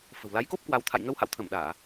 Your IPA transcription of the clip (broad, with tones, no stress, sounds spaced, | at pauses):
f ə̤˨˩ w l a˨˦ j k o˦˥ p̚ k w a˧ w t̪ʰ a̰˧˨ j ŋ ə˧ w h a̰˧˨ w t̪ʰ ə˧˩ m ɗ aː˧˩˨